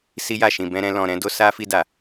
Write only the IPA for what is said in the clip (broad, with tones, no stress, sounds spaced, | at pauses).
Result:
s i˦ j a˦˨ ʃ ĩ˨ b ɛ̃˧ ɾ ɛ̃˧ l ɔ̃˨ ɾ ɛ̃˨˦ d o˦ s a˦ f i˧ d a˨